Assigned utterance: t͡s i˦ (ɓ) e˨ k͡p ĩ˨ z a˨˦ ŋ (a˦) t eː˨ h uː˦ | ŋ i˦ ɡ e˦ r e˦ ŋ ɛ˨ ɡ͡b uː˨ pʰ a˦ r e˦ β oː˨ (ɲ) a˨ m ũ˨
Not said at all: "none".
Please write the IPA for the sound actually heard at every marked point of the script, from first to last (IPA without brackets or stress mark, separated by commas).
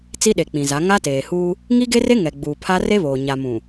ɗ, a˦, ɲ